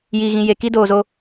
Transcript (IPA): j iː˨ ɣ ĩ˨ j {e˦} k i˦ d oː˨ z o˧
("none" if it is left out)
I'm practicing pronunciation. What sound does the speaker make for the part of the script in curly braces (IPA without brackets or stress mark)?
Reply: e˨